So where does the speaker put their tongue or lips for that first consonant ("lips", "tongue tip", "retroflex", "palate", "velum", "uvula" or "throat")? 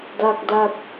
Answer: tongue tip